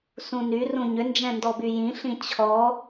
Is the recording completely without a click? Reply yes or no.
yes